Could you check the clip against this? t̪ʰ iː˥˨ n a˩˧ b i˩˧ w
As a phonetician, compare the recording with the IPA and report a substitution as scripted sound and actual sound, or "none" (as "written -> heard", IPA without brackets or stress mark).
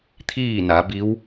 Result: i˩˧ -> i˧˥